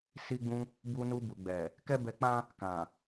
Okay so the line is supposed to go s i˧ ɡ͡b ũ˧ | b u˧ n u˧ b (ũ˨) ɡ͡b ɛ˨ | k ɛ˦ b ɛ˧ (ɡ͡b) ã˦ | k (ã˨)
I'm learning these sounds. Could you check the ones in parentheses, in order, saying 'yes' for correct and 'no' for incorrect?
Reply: no, no, yes

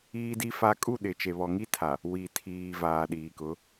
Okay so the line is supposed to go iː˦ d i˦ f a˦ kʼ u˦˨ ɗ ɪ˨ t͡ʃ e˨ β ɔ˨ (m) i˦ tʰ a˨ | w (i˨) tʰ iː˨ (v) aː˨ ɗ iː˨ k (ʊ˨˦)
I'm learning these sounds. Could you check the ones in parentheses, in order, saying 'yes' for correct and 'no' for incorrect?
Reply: no, yes, yes, yes

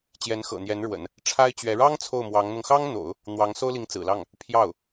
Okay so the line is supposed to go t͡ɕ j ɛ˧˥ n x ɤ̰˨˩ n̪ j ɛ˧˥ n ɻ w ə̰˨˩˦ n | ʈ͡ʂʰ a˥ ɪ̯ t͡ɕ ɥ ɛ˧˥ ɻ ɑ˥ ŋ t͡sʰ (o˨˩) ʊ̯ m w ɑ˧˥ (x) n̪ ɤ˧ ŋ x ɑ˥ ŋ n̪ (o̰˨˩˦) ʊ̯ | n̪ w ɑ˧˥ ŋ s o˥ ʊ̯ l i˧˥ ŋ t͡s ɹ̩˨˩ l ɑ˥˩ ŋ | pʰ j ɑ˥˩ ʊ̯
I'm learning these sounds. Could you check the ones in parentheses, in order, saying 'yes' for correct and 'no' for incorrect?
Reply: no, no, yes

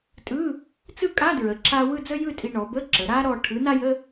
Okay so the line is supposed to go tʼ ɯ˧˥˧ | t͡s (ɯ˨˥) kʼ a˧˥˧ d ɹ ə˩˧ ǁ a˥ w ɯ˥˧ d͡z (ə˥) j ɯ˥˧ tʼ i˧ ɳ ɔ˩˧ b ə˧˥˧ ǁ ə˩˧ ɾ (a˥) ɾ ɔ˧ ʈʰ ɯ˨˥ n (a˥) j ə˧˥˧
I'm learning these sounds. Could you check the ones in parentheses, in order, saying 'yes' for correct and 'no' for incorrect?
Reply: no, yes, yes, yes

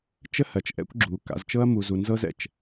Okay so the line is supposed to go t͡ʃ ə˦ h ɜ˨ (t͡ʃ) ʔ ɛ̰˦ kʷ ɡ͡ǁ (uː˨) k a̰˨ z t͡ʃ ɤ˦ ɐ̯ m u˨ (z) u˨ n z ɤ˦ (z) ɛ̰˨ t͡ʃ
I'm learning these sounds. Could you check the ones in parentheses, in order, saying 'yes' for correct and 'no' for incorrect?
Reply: yes, yes, yes, yes

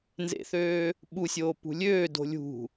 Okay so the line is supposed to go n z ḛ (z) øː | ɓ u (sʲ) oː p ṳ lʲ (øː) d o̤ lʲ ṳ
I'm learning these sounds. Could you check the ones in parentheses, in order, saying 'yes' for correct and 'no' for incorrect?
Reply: no, yes, yes

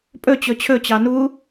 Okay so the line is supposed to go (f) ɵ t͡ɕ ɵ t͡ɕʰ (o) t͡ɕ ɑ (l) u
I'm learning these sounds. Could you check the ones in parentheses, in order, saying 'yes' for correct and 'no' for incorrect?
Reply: no, no, no

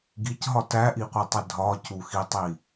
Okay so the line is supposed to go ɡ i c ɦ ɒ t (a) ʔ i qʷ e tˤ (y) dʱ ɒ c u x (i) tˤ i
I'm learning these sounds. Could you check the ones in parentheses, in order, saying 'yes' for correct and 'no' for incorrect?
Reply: no, no, yes

